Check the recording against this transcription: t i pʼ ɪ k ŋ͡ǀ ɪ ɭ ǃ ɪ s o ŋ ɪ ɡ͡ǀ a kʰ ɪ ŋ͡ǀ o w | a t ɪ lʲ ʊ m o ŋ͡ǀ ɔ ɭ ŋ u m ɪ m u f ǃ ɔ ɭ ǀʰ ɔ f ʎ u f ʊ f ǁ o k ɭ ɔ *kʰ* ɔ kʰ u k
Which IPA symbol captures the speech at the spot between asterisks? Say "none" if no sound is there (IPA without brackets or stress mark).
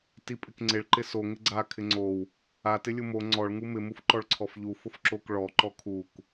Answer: ǃ